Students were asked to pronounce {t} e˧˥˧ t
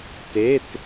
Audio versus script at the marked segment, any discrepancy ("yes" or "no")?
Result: no